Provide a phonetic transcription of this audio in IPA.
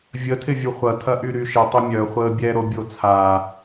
vʲətʰɪ vʲuχʷɐtʰɐ ʔyɾyʃɪ tˤəmʲœ χʷəːbʲɛɾo bʲot͡sʰa

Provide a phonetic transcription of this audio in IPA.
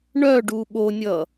ɳœɖu ɓonʲʌ

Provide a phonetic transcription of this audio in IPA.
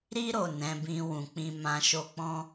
ɾi˧ɾo˨ nɛ̃˨˦bĩ˧wũ˨k͡pĩ˧ mã˨ʃo˧k͡pɔ̃˦

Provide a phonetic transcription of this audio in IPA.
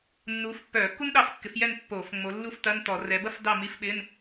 nːuː˨˦f pːœː˧˩˧kːu˥nɗɑ˦˨fkːɪ˨˦f jɛ˦˨n pːoː˧˩˧fŋ͡mo˨˦ lːu˥ftɐ˧˥˧n tɔ˧˩˧rɛ˨˦ bɐ˥fdɑ˦˨ mi˧˥˧fɓɪ˧˥˧n

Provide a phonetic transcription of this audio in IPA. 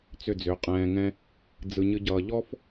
t͡sʏ˦˨d͡zʏ˨˦qʼɛ̃ː˧ŋɛ̃˦ | d͡zɯ˧ɲɨ˦ ɟʌː˧ ʎɔ˦f

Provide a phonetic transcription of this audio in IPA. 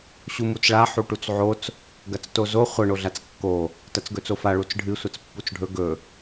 ɕumut͡sɭa ħuʈut͡sʕot͡s | ɡɐt͡stozo χʷɐ ɳoɮat͡skːo | tɐt͡sɡɵt͡sofa ɭut͡sɖʱɨ sʷɐt͡spːut͡sɖʱɵ ɡɵ

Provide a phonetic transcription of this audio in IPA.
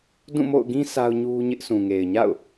dũ˦˨mo̰˦˨ʊ̯ɡĩ˦ sʰa˦ʊ̯ɲu˦ɲɪ˦ʔ sʰũ˨ŋe˨ɪ̯ɲa̰˦˨ʊ̯

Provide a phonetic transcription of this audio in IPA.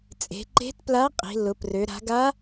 t͡sʼe̤˩˧ǃe̤˧˥tpla˧˥ qʼi̤˩˧lːʊ˩˧prø˩˧ ɾa̤˩˧ɡa˧˥

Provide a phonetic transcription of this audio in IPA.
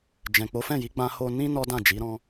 d͡ʒɛ̃˨k͡po˨˦fɛ̃˦˨ji˨˦ ɡ͡bã˧ho˧nĩ˦ nɔ˦dã˦˨d͡ʒi˨˦ ɾɔ̃˧

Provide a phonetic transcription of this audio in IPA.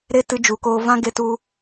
ɾe˦tɨ˧ d͡ʒu˨koː˧ vã˦ ɡe˧tu˧

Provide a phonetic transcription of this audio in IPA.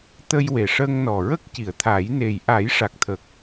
t̪ə˧j we˨˩ʂəː˧ŋnɔ˨˩ ɹə˦˥k̚ ci˨˩˨ə̯t̪ʰaː˨˩˦jne˨˩j ʔa˨˩˦jʂa˨˩k̚t̪ʰə˨˩k̚

